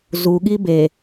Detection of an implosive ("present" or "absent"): present